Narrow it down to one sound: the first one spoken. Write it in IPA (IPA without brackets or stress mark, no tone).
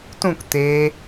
t